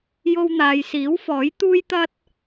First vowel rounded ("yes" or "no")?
yes